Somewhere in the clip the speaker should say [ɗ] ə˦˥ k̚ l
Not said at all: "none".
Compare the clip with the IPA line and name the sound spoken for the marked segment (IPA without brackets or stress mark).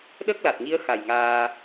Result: ɗ